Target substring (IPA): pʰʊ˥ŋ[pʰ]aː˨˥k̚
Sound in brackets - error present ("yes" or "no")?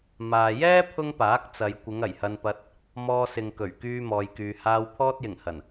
yes